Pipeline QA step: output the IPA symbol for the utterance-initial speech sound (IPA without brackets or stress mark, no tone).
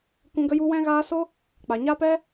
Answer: kʷ